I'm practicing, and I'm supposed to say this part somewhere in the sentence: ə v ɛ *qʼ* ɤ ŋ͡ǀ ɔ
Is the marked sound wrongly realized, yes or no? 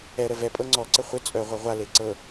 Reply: yes